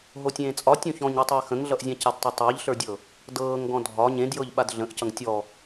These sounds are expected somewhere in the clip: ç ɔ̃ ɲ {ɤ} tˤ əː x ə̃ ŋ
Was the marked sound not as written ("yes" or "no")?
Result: no